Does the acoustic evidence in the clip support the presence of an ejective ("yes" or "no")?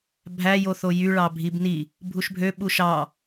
no